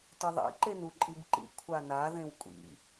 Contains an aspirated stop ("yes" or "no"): yes